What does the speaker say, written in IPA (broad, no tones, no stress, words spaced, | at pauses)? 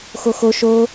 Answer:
xoxo ʃo